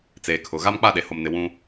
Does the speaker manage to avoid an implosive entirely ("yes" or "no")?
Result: no